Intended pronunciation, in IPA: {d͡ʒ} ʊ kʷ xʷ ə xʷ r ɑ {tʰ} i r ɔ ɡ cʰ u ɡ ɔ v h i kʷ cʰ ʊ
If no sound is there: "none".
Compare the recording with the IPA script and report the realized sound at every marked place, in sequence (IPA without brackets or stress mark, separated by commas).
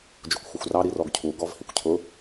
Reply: d͡ʒ, ɾ